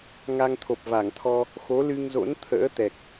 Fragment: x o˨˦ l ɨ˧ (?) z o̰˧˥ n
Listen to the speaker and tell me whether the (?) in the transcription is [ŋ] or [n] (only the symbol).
ŋ